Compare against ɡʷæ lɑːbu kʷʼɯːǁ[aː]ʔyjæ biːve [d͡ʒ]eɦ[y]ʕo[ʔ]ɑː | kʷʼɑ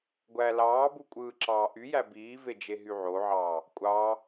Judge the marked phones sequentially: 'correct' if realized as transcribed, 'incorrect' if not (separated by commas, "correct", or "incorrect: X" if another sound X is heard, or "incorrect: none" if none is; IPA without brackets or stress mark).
incorrect: ɑː, correct, correct, incorrect: ʕ